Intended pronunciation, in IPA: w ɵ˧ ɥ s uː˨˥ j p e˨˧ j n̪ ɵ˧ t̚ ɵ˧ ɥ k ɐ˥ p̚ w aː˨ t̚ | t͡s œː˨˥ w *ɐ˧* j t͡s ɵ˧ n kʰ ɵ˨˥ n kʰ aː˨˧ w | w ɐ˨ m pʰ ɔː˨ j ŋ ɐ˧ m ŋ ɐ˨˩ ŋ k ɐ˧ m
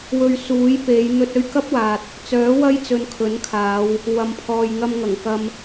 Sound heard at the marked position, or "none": ɐ˥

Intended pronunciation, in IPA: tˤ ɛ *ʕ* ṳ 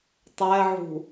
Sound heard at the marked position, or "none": ʕ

